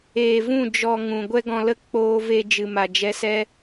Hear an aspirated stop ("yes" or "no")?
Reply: no